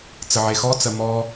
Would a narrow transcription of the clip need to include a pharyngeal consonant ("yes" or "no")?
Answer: yes